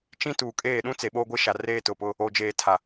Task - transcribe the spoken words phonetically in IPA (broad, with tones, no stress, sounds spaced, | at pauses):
t͡ʃ ĩ˦ t uː˨ kʼ eː˦˨ ɗ ũ˦ t͡s e˨ ɓ oː˦ ɡʷ e˦ ʃ a˨ r eː˦ t ʊ˨ p ʊ˦ | o˨ d͡ʒ eː˨ tʰ a˨